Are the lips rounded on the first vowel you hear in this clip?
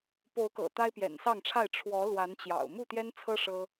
yes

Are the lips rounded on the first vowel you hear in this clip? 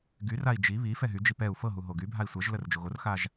yes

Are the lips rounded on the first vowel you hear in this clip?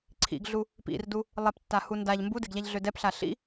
no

